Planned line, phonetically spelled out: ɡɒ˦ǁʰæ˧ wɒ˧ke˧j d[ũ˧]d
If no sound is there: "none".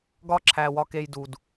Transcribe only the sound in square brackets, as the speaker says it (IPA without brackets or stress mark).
u˧